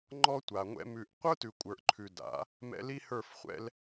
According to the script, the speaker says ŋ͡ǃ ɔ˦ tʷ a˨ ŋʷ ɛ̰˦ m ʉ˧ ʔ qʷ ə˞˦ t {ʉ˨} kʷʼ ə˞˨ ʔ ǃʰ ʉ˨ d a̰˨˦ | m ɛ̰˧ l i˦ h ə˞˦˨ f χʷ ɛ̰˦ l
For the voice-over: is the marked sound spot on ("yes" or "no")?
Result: yes